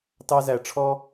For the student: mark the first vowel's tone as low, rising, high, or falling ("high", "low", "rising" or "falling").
high